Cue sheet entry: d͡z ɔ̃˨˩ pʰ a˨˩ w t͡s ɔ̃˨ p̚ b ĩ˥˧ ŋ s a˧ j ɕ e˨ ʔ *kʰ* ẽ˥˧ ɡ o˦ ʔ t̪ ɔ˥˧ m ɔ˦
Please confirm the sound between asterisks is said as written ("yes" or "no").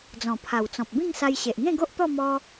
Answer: no